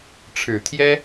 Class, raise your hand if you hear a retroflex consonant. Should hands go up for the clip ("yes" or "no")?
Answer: yes